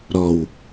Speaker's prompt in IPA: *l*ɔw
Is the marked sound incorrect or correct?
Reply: incorrect